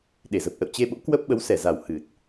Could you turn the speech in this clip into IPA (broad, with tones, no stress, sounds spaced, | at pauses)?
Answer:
ɗ e˧˩ z ə˨˩ p̚ ʔ ə̰˧˨ w t͡ɕ e˧ ɓ o̰˧˥ k w ə˦˥ p̚ ɓ ə˨˦ w s ɛ˧˩ z a˨˩ w h ɨ˨˩ t̚